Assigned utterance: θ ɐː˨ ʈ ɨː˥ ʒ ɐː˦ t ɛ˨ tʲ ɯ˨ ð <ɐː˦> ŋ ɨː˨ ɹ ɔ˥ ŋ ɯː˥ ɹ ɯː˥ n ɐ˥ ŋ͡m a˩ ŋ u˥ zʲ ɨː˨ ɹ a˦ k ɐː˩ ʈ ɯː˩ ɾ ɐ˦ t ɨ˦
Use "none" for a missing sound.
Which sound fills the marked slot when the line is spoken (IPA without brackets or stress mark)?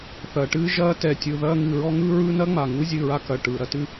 ɐː˦